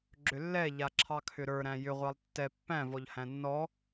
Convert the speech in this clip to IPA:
ɡ͡ǁ ʏ lː ɛ ʎ a ǁʰ ɑ kʰ ʏ ɾ ə˞ ɾ æ̃ j ʏ ʁʷ ɑ lˠ tː ɛ pː æ̃ v ɔ ʎ h æ̃ nː ɔ

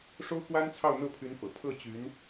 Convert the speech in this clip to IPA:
ʂ o˥ ʊ̯ k w a˥ n t͡sʰ ɑ˥˧ ʊ̯ n̪ ɤ˥˩ pʰ y˧˥ n f ɤ̰˨˩ pʰ ɤ˥˩ t͡ɕ y˧˥ n

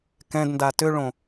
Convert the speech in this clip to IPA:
k ɛ̃ d n d a t ʏ ɭ õ

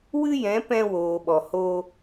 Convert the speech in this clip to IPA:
w ɨ˦ j ɛ̃˨˦ p ɛ̃˧ w oː˨ ɓ ɔ˨ h oː˧

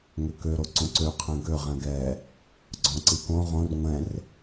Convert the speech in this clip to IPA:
ŋ ø k ø ɾ o ǀ õ ǀ ø qʰ ɛ̃ ɡ ø ʁ ɛ̃ ɡ ɛ | ɡ͡ǀ ɔ̃ ǀ i k õ ʁ õ r ŋʷ ɛ̃ r

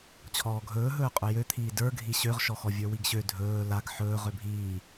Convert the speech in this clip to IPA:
t͡ɕʰ ɔː ɡʱ ɵː ɦ ɵː qʼ ɵ j ø t̪ʰ iː d ə˞ ɡʱ i ɕ ø ʁ ʃ ɔ x ɔ vʲ ə˞ w i ɡ ɕ ø dʱ ɵː l a ɡ ħ ɵː ʁ ø bʱ iː

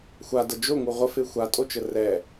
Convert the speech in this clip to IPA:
xʷ a d ə d͡ʒ o ŋ u ʁʷ ə f e xʷ a tʼ o t͡ʃ ə r ɛ

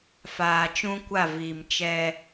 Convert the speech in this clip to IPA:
f aː˨ t͡ʃ ũ˦ kʷ a˦˨ v iː˨ m t͡ʃ ɛ˦

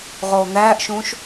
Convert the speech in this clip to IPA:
ʁ oː n̪ æː ʔ ʃ ũː ʃ

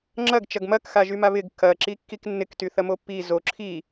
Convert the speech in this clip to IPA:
ŋ͡ǁ ɐ ɡ t͡ʃ ɐ ɡ m ɐ k x a ʒ y m a β ɪ ɡ k ɐ ǁ i kː i k nː ɪ k t y θ ɐ m o pː i z o ǁʰ i

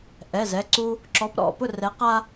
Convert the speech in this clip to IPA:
ʔ ɛ˩˧˩ z ɛ˩˧˩ ǀ u˦ | ǁ ɔ˨˦ p ɾ ɔ̰˥˨ p ʊ˥˨ r ɛ˨˦ q a˦

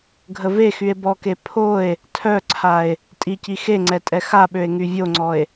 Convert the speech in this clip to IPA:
ɡʱ ə v e x y e̯ b ɔ k e pʰ o e̯ | tʰ œ ǀʰ a e̯ | tʼ i c i x e ŋ͡ǀ ɛ tʼ ɛ x a ɓ ø e̯ ŋ y vʲ o ŋ͡ǀ ɔ e̯

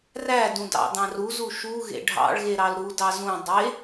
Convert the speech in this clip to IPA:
r æ d ũ d ɑ̰ d̪ ɑ̃ r u z u ʃ u ɣ ḛ ɖʱ ɑ̰ ɭ ɣ e ɾ ɑ l ɾ u d ɑ z ũ dˤ e

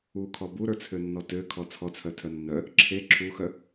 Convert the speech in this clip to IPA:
u kʰ ɔ b u ɾ ə˞ t͡sʰ ø nː ɔ t ø kʰ ɔ t͡sʰ ɔ t͡sʰ œ tʰ œ nː œ | ǁʰ e ǁʰ u x œ

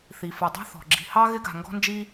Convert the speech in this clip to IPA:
θ i˩ f ɨ˩ dˤ i̤˦ θ ɔ̤˩ ɡ͡ǁ i̤˨ h ɑ˥ ɣ ɪ˥ ɡ a̤˨ ŋ ɡ ɔ̤˦ n d͡ʒ i˦

